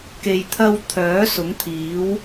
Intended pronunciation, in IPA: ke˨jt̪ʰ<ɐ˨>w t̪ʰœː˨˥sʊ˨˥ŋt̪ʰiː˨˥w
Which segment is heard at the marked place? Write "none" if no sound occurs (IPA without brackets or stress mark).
ɐ˧